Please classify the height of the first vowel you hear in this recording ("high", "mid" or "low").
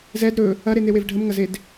mid